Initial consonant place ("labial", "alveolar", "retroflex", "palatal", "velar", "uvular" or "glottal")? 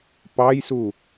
labial